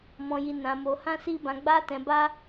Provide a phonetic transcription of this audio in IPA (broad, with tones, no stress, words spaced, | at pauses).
mɔ̃˧ji˧nã˧mo˧ hã˦si˦bã˧ ɡ͡ba˦tɛ̃˧ba˦